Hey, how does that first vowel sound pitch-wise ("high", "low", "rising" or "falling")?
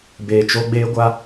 low